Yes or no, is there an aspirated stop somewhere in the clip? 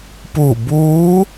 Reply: no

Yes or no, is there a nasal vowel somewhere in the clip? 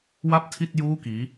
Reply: no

